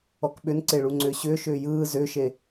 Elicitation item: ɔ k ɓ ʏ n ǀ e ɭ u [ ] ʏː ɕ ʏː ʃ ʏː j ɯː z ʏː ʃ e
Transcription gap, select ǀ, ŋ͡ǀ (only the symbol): ŋ͡ǀ